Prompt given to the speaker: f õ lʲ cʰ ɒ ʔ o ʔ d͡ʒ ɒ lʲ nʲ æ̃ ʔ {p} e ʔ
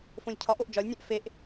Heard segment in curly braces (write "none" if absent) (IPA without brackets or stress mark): f